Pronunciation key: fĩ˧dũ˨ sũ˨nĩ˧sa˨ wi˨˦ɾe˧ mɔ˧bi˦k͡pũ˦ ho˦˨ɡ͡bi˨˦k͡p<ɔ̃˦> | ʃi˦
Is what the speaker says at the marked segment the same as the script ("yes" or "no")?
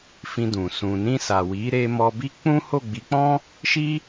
yes